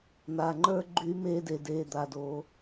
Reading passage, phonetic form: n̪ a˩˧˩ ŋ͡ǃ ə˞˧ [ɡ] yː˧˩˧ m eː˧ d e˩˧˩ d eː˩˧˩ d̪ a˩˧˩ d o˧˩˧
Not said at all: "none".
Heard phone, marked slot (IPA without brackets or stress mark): ɡ͡ǃ